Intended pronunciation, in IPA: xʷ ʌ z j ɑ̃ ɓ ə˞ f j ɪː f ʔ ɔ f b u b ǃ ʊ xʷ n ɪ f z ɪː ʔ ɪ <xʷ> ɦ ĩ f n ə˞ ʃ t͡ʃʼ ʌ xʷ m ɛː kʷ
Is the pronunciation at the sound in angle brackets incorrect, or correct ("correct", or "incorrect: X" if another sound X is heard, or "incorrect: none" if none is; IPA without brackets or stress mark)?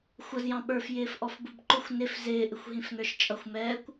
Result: correct